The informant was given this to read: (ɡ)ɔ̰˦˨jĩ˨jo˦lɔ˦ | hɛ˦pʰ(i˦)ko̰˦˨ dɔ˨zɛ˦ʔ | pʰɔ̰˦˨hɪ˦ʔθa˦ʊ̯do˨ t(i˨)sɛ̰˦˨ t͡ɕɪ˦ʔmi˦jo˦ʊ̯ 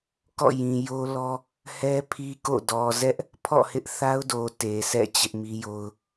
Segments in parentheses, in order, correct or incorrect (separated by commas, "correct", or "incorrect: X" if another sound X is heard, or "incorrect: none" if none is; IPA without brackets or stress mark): incorrect: k, correct, incorrect: e˨